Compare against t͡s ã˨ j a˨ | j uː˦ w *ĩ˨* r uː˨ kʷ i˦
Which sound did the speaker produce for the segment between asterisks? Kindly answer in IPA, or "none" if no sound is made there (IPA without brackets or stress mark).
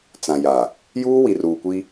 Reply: i˨